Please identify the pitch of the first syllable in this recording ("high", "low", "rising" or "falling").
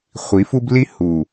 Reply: rising